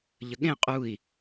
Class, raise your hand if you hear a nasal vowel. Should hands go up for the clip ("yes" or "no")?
yes